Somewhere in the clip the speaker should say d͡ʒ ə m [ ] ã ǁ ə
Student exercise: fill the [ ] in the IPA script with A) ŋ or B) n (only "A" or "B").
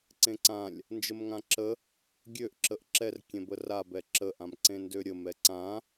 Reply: A